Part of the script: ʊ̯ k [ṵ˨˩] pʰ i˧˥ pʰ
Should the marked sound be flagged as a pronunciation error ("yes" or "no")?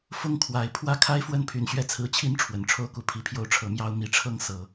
yes